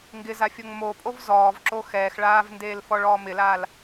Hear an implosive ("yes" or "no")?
no